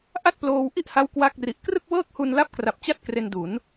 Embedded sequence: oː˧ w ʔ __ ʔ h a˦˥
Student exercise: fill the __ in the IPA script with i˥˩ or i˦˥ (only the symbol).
i˥˩